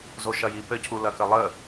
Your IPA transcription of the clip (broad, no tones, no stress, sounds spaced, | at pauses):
z o ʃ ɐ j i p ɘ cʰ u l ɐ k ə lˠ ə